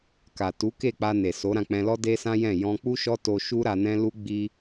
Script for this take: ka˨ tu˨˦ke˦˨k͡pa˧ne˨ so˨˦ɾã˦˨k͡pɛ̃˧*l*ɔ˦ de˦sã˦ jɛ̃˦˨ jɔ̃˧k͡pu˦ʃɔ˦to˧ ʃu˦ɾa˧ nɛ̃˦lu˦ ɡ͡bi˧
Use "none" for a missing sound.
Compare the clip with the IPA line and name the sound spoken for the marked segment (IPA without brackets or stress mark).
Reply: l